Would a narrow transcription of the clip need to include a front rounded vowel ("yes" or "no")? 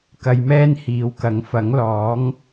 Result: no